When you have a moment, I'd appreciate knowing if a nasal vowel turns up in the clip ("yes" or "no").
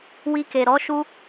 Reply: no